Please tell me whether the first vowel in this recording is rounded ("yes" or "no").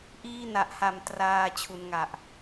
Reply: no